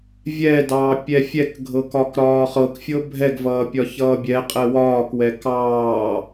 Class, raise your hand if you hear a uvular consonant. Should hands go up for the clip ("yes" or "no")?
yes